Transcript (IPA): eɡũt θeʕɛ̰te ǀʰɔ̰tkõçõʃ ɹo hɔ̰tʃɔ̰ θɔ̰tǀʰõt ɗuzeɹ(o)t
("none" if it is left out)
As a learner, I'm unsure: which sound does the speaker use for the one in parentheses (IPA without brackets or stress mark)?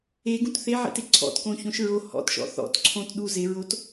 o